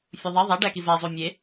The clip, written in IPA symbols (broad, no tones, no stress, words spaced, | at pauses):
fʲuðˤi ðˤæ ɖækivæ zˤumʲe